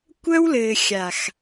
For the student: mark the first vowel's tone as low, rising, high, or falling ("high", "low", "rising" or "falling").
high